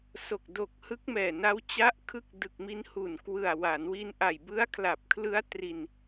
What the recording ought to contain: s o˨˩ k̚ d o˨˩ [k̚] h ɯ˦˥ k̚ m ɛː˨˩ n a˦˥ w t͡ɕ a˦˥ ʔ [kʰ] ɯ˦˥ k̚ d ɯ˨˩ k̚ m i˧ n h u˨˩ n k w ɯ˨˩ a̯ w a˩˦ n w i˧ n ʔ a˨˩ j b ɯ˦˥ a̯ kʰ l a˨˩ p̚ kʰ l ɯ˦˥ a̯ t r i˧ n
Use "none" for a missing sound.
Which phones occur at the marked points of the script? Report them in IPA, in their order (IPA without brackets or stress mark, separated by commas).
k̚, kʰ